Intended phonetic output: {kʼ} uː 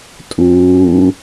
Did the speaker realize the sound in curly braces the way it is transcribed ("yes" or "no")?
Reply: no